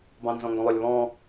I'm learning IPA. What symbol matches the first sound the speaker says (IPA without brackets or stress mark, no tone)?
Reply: b